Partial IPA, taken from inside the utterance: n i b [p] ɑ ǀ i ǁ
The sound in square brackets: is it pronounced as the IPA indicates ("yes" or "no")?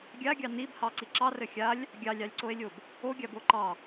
no